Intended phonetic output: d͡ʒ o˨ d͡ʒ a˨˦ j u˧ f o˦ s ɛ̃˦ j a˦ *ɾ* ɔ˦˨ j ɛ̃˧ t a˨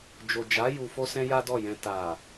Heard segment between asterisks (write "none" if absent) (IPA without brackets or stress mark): d